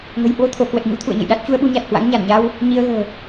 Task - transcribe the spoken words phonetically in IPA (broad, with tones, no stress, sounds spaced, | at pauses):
ŋ ə̤˨˩ j h w o˧ t̪ʰ o˧˩ k w ə˨˩ t̚ ɲ ṵ˧˥ t̪ʰ ṵ˧˨ ə̯ ɲ ə̰˧˨ j ɗ a˦˥ t̚ t͡ɕ u˧ ə̯ ɓ u˨˦ ɲ a˨˩ t̚ h w a̰˧˥ ŋ ɲ a˧˩ n ɲ a˧ w | ɲ i˧ ə̯ ɣ ə̤ː˨˩